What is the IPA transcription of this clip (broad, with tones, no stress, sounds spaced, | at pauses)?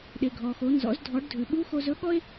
ɗ e˩ ɡʱ ɔ˩ x o˩˧ n z ɔ̰˩˧ z dʱ ɔ˩˧ ɖ dʱ ʉ˩ ɓ u˧˥ x o˧ z ɵ˧˥ ɠ ɔ˥ e̯